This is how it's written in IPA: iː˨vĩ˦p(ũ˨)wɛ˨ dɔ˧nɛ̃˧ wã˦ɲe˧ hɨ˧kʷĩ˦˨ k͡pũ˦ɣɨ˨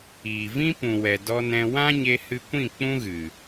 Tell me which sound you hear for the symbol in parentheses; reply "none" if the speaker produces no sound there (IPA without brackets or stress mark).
ũ˨